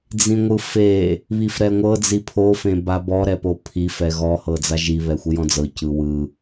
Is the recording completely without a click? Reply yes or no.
yes